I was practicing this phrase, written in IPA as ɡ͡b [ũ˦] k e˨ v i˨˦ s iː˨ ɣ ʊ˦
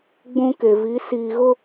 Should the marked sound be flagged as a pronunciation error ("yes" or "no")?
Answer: no